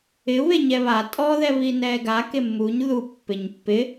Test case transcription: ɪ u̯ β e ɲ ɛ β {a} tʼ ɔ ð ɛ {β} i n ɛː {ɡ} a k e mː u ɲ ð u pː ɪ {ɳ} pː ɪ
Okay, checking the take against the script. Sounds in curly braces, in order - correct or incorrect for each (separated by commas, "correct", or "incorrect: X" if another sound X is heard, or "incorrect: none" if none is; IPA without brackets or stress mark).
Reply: correct, correct, correct, incorrect: ɲ